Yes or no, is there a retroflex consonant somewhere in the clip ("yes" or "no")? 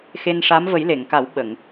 yes